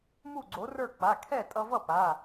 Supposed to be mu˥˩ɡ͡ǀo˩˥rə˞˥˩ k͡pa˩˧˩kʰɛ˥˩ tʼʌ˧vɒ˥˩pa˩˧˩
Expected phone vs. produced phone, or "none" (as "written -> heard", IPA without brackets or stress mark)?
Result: ɒ˥˩ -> ʌ˥˩